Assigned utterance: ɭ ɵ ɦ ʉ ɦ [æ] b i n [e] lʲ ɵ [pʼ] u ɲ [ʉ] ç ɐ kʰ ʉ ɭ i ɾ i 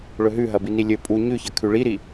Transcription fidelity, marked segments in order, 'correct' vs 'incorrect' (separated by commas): incorrect, incorrect, correct, correct